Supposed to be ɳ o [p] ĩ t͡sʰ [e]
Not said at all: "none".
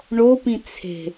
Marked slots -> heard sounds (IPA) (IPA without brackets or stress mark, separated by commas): p, e̤